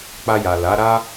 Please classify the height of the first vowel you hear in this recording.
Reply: low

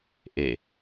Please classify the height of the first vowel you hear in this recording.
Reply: mid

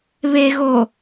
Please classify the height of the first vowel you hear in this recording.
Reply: mid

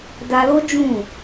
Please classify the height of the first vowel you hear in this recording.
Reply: low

